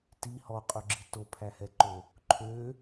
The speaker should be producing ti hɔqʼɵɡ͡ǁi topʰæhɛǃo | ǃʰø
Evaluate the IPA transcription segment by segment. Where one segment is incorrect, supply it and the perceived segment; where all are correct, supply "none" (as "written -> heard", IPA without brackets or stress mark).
none